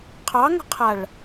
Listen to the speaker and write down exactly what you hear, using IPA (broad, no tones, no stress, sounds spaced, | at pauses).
qʰ ɑ ŋ ə̤ qʰ a ɭ